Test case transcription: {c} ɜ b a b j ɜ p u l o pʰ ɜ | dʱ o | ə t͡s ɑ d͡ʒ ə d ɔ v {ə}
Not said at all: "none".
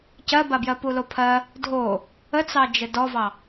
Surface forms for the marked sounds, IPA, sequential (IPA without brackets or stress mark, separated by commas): c, ɑ